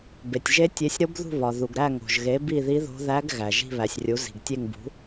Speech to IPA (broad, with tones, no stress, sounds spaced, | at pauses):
b e˩ tʲ ʒ e˧˥ tʲ e˩˥ sʲ ɾ o˧˥ b ð ṳ˦˨ β ɒ˩ ð u˩ ɡ ɾ æ˦˨ ŋ o̤˩ ʒ ɣ e˩˥ b i˦˨ ð i˧˥ ð o̤˧˥ ð æ˧˥ ɡ ɣ æ˩ ʒ i̤˦˨ β æ˩ sʲ rʲ u˩˥ z i̤˩ ɡ tʲ e˦˨ ŋ b ṳ˩˥